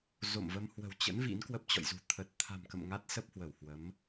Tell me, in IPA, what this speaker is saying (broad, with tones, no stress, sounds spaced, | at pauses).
z o̰˧˨ m v ə˧ m h w ə̤˨˩ w t͡ɕ ə̰˧˥ n v ḭ˧˥ n k w ə˦˥ p̚ t͡ɕ ɔ̰˧˨ j z ṳ˨˩ t̪ʰ ə˨˩ t̚ t̪ʰ a̤˨˩ m k ə̰˧˨ m ŋ a˦˥ t̚ s ə˦˥ p̚ h w ə˧˩ w h w ə˨˦ m